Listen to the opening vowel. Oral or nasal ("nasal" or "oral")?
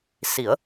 oral